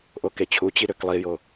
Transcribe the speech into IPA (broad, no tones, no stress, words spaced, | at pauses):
ʔoket͡ɕʰut͡ɕi ɾøklˠijo